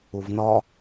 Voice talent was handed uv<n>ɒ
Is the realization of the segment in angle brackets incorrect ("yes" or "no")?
no